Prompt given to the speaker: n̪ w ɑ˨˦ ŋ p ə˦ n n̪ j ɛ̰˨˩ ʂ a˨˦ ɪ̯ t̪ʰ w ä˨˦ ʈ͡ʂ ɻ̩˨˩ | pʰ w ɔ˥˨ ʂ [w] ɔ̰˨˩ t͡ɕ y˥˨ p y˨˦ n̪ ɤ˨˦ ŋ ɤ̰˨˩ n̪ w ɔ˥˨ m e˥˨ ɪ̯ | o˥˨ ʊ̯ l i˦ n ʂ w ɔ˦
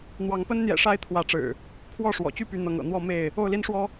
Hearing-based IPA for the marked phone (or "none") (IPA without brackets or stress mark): w